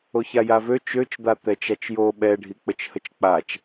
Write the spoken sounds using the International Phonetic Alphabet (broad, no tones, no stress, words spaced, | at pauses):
oçajavø t͡ʃøt͡ʃd̪a t̪ɛt͡ʃat͡ʃjo ɓɛɖʱi k͡pət͡ʃhət͡ʃk͡pat͡ʃ